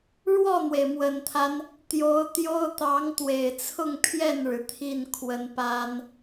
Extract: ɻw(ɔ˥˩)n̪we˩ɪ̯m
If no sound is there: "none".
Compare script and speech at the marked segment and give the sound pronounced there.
ɔ˥˩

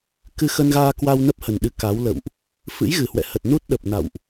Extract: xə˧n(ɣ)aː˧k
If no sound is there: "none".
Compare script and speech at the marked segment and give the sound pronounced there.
ɣ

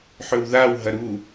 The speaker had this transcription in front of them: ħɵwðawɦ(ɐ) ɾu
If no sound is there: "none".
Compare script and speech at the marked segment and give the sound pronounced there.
ɐ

